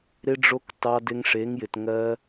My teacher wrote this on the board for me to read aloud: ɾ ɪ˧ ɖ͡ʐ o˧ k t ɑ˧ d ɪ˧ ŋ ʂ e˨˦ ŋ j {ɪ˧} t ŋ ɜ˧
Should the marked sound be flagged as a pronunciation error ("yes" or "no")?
yes